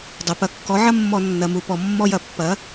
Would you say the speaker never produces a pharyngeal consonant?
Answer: no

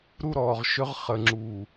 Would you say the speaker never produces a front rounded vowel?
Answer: no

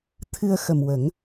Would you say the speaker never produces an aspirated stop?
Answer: no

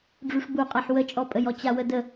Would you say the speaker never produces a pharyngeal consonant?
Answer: no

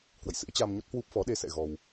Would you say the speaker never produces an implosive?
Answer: no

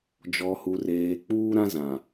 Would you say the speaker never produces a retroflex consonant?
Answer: yes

